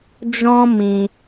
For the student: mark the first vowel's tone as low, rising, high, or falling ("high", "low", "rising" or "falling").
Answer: high